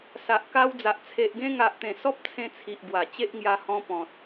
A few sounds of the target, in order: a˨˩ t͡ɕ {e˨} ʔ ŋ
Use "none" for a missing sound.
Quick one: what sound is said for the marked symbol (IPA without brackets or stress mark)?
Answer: e˦